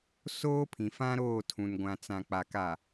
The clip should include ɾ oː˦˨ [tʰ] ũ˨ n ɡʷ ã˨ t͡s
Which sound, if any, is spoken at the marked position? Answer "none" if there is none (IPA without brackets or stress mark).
tʰ